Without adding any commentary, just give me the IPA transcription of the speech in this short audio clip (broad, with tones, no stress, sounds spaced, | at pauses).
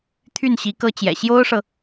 t̪ʰ y˥˩ n ɕ i˧˥ k ɤ˥ t͡ɕ j ɛ̰˨˩ ɕ j o˥ ʊ̯ ʂ ɤ˨